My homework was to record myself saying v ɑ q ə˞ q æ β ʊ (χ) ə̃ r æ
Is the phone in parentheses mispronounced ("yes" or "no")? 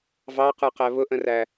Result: yes